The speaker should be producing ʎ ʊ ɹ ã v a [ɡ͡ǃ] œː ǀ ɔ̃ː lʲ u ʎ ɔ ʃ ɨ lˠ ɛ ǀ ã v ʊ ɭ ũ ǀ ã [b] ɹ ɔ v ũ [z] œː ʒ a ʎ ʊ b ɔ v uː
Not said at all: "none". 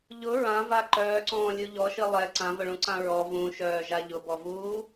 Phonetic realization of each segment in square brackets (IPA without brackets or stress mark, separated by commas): ǃ, none, ʃ